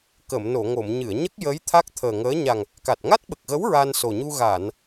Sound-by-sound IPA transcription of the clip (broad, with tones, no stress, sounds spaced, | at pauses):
k ə˨˩˨ m n o˨˩˨ ŋ o˨˩˨ m ɲ ɨ˨˩˨ ə̯ ɲ ə˦˥ k̚ j əː˧˥ j t̪ʰ a˦˥ k̚ t̪ʰ əː˨˩ ŋ əː˧˥ ɲ a˨˩ ŋ | k a˨˩ t̚ ŋ a˦˥ t̚ ɓ ə˨˩ k̚ ɣ ə˧˥ w ɹ a˧ n s o˨˩ ɲ u˧ ɣ a˨˩˨ n